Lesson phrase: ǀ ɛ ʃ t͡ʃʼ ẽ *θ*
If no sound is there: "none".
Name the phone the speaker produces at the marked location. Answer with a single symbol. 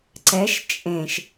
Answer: ʃ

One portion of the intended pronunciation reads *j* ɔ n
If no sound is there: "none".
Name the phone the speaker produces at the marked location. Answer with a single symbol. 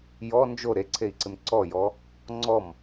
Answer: j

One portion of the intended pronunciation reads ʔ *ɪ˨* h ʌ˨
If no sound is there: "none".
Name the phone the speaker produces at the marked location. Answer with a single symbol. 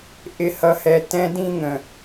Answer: ɪ˨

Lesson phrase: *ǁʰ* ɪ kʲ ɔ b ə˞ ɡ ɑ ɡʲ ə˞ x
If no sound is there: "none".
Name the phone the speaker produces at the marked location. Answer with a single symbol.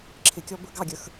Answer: ǁʰ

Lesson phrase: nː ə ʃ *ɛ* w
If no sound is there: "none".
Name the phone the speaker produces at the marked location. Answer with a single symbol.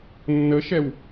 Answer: ɛ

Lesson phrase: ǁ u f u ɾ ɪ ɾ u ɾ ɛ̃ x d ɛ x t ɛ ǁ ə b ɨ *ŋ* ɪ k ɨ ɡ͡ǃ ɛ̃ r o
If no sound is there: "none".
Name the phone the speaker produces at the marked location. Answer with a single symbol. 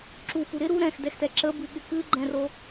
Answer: ɠ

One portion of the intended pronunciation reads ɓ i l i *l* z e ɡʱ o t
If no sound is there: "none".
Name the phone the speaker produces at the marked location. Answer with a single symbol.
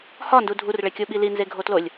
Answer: n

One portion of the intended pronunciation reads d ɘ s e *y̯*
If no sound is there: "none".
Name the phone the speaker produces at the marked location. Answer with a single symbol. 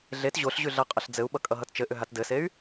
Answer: y̯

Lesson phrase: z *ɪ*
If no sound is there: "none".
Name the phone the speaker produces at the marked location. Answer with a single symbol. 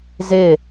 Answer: ɪ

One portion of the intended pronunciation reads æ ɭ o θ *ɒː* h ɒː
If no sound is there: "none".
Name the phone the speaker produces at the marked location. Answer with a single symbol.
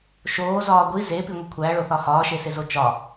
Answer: ɒ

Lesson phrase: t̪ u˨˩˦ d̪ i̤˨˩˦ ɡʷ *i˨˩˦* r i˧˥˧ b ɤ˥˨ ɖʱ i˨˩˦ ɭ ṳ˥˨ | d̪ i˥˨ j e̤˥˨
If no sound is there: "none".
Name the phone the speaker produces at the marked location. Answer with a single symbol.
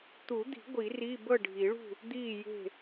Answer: i˨˩˦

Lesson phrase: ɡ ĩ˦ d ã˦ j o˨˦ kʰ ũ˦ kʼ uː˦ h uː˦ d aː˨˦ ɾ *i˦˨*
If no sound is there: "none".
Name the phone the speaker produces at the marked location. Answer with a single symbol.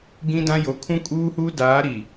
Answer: i˨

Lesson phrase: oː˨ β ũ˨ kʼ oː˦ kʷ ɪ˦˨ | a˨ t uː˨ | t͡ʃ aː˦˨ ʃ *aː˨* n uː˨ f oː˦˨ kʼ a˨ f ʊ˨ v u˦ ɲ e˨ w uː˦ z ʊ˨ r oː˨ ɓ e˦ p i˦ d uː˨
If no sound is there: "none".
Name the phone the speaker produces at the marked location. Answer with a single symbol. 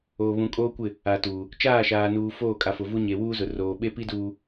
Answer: aː˨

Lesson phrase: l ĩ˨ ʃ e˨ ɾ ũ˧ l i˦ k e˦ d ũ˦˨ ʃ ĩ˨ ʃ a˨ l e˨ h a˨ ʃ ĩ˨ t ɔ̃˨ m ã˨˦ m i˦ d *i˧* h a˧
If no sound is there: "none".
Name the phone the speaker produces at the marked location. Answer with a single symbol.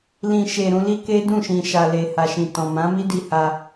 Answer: i˧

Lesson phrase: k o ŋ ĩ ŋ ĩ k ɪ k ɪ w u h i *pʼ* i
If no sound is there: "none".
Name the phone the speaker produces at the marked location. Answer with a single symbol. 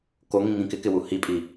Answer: pʼ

